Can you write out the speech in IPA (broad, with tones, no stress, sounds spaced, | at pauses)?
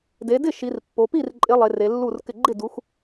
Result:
d e˨˦ d ɪ˥˩ ʃ i˨˦ r pː o˨˦ p i˥˩ r ǃʼ ɪ˨˦ lˠ e˨˦ r e˨˦ lː u˥˩ r k ɪ˥˩ ɡ͡ǃ ɪ˥˩ d u˨˦ x